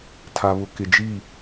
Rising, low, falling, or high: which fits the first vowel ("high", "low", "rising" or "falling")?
low